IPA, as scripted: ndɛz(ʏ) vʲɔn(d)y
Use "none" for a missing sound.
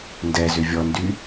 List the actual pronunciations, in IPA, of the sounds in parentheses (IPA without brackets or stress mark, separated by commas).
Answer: ʏ, d